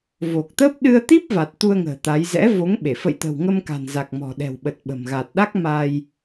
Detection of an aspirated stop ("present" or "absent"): absent